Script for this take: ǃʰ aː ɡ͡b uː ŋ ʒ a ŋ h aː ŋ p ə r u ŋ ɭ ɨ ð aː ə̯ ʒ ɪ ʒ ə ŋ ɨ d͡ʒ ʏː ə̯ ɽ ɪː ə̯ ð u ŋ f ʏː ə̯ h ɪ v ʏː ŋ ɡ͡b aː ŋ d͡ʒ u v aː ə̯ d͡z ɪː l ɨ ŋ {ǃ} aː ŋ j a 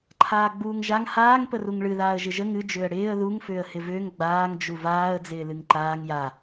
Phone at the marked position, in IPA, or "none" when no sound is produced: ǃ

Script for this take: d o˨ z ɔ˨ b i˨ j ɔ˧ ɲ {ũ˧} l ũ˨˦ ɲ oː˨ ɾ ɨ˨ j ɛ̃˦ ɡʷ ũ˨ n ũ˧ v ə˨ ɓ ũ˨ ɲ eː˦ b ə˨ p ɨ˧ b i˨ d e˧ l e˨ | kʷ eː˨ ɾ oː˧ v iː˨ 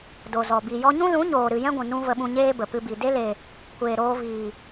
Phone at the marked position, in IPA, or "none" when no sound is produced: ũ˦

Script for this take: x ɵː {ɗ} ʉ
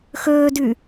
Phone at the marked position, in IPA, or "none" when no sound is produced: d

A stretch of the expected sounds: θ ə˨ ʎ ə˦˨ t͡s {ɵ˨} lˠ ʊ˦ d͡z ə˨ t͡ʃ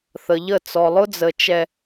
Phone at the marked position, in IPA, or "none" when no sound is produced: ɔ˨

